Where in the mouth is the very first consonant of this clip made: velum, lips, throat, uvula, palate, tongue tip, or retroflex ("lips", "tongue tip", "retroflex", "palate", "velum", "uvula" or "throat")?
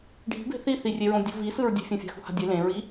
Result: retroflex